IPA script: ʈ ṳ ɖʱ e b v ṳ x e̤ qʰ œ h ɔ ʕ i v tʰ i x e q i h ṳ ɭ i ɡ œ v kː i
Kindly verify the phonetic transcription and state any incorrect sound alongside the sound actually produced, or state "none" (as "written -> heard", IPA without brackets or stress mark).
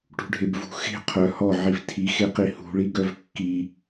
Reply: none